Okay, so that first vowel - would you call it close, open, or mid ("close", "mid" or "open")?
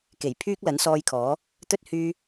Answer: mid